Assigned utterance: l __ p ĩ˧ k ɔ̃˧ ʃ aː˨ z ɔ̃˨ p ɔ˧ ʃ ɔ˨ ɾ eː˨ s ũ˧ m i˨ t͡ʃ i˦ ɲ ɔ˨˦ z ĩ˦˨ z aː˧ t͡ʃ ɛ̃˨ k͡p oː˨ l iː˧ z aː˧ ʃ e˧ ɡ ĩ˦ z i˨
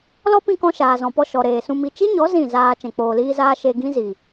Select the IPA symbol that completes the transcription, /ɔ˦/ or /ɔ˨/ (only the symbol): ɔ˦